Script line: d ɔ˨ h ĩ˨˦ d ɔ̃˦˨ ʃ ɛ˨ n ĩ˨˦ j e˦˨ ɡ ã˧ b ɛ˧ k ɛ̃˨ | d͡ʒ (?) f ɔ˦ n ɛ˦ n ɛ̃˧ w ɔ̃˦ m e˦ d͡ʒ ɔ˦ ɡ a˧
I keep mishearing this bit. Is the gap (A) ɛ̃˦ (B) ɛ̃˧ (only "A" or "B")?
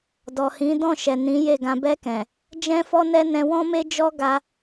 A